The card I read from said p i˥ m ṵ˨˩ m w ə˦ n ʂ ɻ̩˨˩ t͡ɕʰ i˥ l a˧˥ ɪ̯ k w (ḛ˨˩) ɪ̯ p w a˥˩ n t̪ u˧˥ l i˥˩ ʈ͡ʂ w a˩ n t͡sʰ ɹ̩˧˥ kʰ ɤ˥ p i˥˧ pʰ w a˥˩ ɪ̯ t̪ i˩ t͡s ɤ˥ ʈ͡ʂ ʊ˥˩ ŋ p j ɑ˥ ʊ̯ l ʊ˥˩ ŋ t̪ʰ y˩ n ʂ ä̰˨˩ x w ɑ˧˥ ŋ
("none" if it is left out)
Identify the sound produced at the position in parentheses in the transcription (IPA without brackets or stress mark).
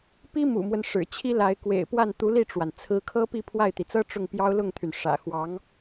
ḛ˨˩